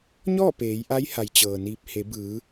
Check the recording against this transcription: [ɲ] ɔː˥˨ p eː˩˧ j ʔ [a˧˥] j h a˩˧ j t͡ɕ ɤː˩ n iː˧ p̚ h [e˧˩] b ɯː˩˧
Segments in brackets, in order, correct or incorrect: correct, correct, incorrect

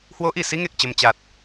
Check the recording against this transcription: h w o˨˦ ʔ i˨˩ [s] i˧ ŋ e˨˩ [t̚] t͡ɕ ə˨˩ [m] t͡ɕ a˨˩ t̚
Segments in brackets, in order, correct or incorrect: correct, incorrect, correct

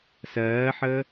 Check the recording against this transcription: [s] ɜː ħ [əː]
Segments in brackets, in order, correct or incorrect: correct, correct

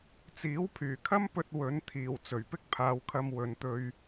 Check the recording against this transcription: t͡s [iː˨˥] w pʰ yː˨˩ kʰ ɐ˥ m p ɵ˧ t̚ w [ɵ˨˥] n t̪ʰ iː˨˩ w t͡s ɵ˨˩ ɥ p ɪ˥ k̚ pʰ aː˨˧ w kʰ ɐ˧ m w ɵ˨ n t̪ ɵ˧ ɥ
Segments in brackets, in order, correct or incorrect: correct, correct

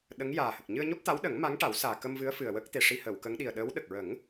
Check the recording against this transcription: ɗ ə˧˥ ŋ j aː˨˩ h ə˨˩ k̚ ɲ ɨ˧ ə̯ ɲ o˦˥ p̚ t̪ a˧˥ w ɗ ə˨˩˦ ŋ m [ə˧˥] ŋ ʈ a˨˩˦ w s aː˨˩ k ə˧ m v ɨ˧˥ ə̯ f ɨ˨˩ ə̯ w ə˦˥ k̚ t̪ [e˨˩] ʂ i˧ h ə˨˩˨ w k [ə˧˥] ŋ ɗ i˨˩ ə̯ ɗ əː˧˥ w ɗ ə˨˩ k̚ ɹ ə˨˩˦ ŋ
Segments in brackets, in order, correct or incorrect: incorrect, correct, correct

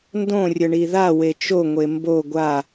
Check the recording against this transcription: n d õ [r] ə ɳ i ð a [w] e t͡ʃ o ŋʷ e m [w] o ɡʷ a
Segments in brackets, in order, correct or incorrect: incorrect, correct, incorrect

